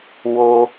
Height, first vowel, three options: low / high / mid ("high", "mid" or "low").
mid